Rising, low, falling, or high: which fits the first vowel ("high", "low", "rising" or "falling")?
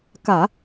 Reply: low